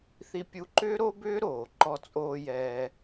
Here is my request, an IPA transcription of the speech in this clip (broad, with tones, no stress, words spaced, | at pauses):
θi˧pʲu˧ǃʏː˥ɾo˥ bʏː˥ɾoː˩ǃɔ˧t͡sʼoː˧ jɛː˧